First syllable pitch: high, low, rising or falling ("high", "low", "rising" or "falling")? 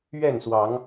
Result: falling